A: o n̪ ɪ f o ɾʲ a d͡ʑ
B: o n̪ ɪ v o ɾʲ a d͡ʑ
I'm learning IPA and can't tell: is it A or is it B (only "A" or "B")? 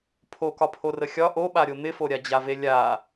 A